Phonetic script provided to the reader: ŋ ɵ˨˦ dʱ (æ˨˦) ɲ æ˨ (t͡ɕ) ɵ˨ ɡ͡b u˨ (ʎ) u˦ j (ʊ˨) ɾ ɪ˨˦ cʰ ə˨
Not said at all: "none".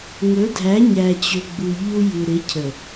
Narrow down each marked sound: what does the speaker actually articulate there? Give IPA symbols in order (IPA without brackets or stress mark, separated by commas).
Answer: æ˨˦, t͡ɕ, ʎ, u˨